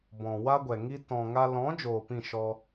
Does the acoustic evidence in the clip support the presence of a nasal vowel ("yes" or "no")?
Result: yes